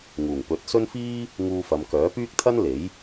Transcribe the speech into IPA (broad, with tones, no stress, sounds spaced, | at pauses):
ŋ uː˨˩ ŋ p ɵ˨˥ t̚ s ɵ˥ n f iː˥ | ŋ uː˧ f ɐ˨˧ m k œː˨˥ p yː˥ k̚ t̪ʰ ɐ˥ n l e˨˥ j